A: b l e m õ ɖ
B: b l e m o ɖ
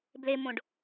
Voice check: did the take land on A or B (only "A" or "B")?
A